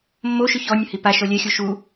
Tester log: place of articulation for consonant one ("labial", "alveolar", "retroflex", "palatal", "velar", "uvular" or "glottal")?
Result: labial